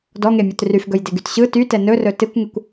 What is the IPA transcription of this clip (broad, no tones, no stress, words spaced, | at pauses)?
dɔŋemʲɵt ryfɡɵjdeɡyt ɕɯ tytɛ nɵrɵ tɪkʷŋɪkʷ